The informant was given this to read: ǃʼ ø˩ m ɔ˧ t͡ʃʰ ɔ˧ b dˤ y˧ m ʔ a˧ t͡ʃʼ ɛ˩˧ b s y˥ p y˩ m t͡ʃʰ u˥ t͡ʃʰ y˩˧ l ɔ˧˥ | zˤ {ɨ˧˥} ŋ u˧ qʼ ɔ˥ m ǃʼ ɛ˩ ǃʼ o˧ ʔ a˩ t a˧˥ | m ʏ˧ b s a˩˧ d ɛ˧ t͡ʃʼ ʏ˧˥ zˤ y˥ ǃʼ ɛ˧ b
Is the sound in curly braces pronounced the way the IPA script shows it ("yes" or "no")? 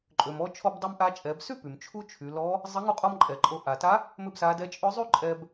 no